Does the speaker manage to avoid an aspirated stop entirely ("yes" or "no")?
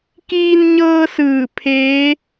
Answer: no